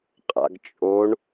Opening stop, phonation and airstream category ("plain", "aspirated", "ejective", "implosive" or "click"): ejective